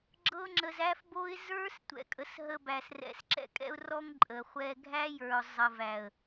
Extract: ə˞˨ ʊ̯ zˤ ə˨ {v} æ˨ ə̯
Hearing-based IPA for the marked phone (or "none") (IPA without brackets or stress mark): v